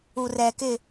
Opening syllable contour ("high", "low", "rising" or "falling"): low